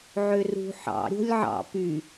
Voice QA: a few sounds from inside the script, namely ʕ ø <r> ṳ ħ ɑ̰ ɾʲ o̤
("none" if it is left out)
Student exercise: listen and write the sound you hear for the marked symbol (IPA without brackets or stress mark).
r